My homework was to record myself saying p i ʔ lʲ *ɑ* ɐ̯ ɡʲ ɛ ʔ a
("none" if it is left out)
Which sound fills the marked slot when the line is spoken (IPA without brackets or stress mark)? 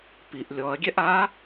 ɔ